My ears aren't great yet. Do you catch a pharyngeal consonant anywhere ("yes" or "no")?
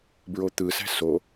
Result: no